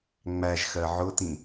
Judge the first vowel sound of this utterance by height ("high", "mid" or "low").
low